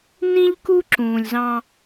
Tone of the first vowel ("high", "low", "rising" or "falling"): high